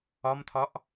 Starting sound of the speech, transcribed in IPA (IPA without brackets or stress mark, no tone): ɒ